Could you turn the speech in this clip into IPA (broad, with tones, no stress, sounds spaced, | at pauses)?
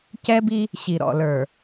c ɛ˦ b i˦ | ɕ i˨ ɾ ɔ̰˦˨ l ə˞˨